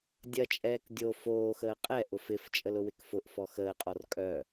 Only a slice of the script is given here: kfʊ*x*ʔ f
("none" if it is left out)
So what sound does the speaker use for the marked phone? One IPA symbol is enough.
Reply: none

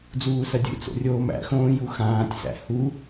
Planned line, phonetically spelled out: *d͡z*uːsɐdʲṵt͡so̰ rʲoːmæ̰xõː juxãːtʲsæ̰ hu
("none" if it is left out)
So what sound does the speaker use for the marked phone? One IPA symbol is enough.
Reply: d͡z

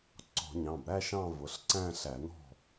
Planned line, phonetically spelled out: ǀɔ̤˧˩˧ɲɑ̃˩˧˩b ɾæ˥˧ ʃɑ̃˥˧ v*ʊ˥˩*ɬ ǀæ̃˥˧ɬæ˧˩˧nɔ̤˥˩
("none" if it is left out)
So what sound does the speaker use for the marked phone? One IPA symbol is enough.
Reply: ʊ˩˧˩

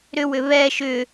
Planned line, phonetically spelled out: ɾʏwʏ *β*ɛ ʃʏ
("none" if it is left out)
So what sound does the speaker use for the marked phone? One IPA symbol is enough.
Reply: β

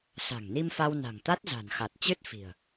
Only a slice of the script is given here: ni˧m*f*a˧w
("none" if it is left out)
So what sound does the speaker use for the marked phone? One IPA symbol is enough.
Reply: f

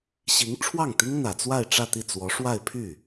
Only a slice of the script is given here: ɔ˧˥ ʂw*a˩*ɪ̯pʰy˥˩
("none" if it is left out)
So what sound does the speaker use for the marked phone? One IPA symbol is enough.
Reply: a˥˧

